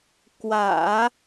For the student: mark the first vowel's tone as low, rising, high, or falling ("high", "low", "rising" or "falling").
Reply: low